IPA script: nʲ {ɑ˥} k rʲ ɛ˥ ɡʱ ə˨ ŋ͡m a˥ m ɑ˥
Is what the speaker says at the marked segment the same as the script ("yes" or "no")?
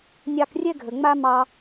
no